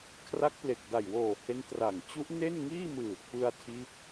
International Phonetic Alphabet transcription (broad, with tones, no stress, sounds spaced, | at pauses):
kʰ r a˦˥ k̚ p l e˨˩ k̚ d a˨˩ j w oː˨˩ h e˦˥ n t r a˨˩ ŋ t͡ɕ u˦˥ ʔ n e˥˩ n ŋ iː˥˩ m ɯː˨˩ t̚ p ɯ˧ a̯ tʰ iː˦˥ p̚